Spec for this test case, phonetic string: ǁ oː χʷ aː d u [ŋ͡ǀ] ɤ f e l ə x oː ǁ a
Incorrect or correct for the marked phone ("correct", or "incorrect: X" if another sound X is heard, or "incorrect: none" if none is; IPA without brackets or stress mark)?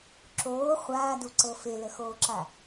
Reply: incorrect: ǀ